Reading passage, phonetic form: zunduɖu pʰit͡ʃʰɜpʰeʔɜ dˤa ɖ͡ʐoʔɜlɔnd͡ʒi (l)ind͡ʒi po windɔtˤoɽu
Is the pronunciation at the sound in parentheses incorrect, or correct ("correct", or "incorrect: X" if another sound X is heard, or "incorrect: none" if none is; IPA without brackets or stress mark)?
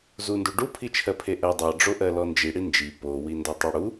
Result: incorrect: ɽ